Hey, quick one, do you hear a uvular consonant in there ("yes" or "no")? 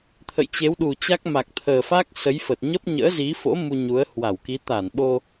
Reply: no